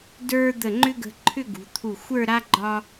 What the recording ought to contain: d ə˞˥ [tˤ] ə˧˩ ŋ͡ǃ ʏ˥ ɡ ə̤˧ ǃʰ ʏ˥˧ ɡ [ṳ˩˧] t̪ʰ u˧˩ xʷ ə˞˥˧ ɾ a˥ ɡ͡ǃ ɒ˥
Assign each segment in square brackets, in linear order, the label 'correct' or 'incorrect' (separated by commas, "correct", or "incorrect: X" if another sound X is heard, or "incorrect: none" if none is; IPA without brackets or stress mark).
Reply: incorrect: d̪, correct